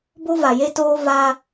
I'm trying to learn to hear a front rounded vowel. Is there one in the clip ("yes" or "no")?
no